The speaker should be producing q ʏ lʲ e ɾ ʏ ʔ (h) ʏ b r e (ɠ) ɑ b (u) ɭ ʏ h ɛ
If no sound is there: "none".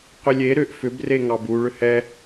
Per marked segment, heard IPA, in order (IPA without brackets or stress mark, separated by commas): f, ŋ, u